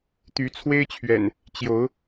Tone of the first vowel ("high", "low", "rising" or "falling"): rising